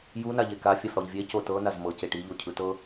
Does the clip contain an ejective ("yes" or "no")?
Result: no